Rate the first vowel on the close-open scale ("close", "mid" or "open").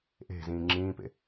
mid